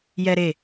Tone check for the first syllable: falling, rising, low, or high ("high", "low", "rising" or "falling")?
high